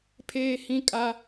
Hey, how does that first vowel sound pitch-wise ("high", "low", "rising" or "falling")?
high